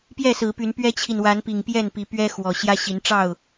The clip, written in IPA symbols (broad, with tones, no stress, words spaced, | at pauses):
pjɛ˥˨sɹ̩˨˦py˨˦n pɥɛ˦t͡ɕʰi˨nwa˨˦npi˨˩ŋ pjɛ˥˨npi˨˦ pɥɛ˦xwɔ˨˩ ɕjä˦ɕi˨˦nʈ͡ʂɑ˥˨ʊ̯